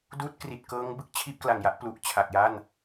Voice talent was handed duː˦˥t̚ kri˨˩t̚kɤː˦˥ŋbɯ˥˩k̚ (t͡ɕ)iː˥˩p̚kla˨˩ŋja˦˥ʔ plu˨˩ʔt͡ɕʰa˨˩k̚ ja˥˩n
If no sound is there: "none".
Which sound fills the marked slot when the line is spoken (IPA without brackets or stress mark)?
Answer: t͡ɕʰ